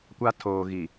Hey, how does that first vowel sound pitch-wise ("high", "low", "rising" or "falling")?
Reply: high